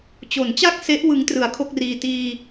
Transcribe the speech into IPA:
t͡ɕ o˩˦ n t͡ɕ a˥˩ k̚ s e˦˥ ʔ w ɯ˦˥ ŋ t r ɯ˨˩ a̯ kʰ o˥˩ k̚ r iː˧ t iː˧

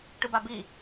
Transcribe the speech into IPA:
ʈ ɯ b a b i

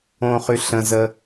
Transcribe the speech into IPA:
õ χ y ɬ ə̃ z ə

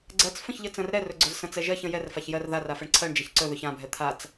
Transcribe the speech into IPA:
ɡ͡ǀ ɜ t͡s f ə̃ ç ʎ ə t͡s ə̃ r ɾ ɛ r ɵ ɡ͡ǀ ɵ z s ə̃ t͡s ɛ ʒ ɜ ç ə̃ j ɛ r f a ç j ɜ r ð a r a f ɛ ɳ ǀʰ ɜ ɳ d͡ʒ ɛ ç ǀ ɵ ð ɵ ç ã bʱ ɛ t̪ʰ a t͡s

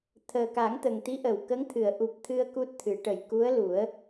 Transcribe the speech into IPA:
t̪ʰ əː˨˩ k a˨˩˦ ŋ t̪ ə˨˩ ŋ t̪ i˧˥ ʔ ə˨˩˨ w k ə˧˥ ŋ t̪ʰ ɨ˨˩˨ ə̯ ʔ u˨˩ p̚ t̪ʰ ɨ˧ ə̯ k u˦˥ t̚ t̪ʰ ɨ˨˩˦ ʈ ə˨˩ j k u˧˥ ə̯ l u˨˩˦ ə̯

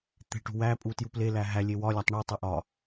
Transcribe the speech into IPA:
t̪ e̤ ʈ ṳ w æ pʼ u t j u p l e l æ ɦ æ lʲ e w ɒ lʲ æ tˤ ɳ u tˤ e ʔ ɒ

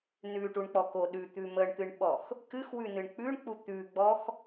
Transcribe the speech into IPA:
n ʉ ʈ u ɳ k͡p ɔ k o ɗ ʉ t̪ ʉ m ə ɳ t̪ ɨ ɳ ɓ ɔ x | k ɨ x w ʉ n ɨ ɳ k͡p ʉ ɳ k͡p u t̪ ʉ ɡ͡b ɔ x

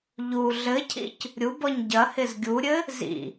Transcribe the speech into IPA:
ʎ u ɮ ɘ cʰ ḭ c | ɾʲ u b ɔ ɲ ɟ ɐ h ɪ z ɡʲ u ɾʲ ɘ | z ḭ

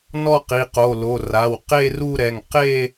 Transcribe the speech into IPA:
n ɔ˥˧ q i˩˧˩ q o˩˧˩ l o˩˧˩ r a˩˧˩ w q e˥˧ r u˥˧ ɾ ɛ˩˧˩ ŋ q e˥˧

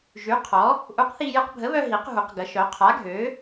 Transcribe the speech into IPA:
ʒ y˨˥ qʰ ɔ˨˥ | ʔ u˨˥ q θ i˧ j ə˧ q bʱ ə˨˥ β œ˧ ɦ i˨˥ q ɦ u˨˥ q ɡ ə˨˥ ʃ œ˨˥ qʰ a˨˥ ɡʱ ø˨˥

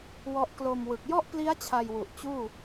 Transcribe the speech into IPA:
w ɔ˦˥ ʔ k l o˧ m w ɯ˨˩ k̚ j ɔ˥˩ ʔ p l i˦˥ a̯ t͡ɕʰ a˧ j w u˨˩ ʔ t͡ɕ uː˥˩

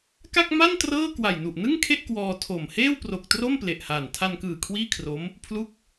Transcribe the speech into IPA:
k a˥˩ k̚ m a˥˩ n t r ɤː˥˩ k w a˨˩ j n u˨˩ ʔ n ɯ˥˩ ŋ kʰ e˥˩ ʔ k w ɔː˧ tʰ o˨˩ m h eː˥˩ w p r o˨˩ k̚ t r o˥˩ m p l e˨˩ ʔ h aː˨˩ n tʰ a˧ n k ɯː˨˩ kʰ w iː˥˩ kʰ r o˦˥ m | pʰ l u˥˩ k̚

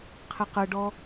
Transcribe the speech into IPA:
qʰ ɛ q ɤ ɖ ɔ

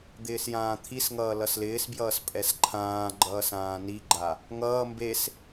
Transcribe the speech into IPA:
d̪ ɪː s j ãː t̪ʰ i s ŋ ʌː l ʌ s l ɪː s b j ʌː s pʼ ɛ s ǃʰ ãː ɡ͡ǃ ʌː s ãː n i ɡ͡ǃ a | ŋ ʌː m b e s

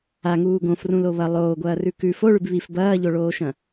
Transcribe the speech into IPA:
a ŋ uː ɡ õ f r ũ l o β ɐ lˠ oː ɡʷ ɐː r ʉ k ʉ f o ɭ ʉ b β i f b ɐː ʎ o ɭ oː ʃ ɐ̃

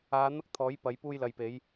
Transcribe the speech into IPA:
aː˨˧ n̪ ɐ˥ k̚ t̪ʰ ɔː˨˥ j p ɐ˨˥ j p uː˥ j l ɐ˨ j p e˨˥ j

